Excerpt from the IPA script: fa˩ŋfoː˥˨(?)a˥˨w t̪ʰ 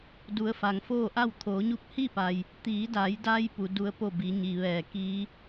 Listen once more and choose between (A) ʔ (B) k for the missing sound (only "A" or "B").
A